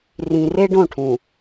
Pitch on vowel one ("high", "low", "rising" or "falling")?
low